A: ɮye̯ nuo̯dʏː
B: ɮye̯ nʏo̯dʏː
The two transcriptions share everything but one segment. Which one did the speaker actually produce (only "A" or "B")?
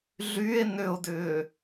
B